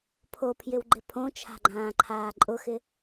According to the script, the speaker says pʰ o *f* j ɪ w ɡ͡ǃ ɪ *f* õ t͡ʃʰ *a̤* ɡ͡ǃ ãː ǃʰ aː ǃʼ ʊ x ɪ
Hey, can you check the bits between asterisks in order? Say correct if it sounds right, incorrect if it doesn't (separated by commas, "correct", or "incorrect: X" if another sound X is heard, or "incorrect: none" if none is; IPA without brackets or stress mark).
incorrect: pʰ, incorrect: pʰ, correct